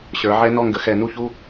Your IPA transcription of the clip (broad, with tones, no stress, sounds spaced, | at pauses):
ɕ ə˞˨˦ ʕ ɛ˦˥ n ɔ˥˧ ŋ ɡ ə˨˦ x ɛ˧˩˧ n u˥˧ ç u˧˥˧